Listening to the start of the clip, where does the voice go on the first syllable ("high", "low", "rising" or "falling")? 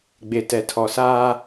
low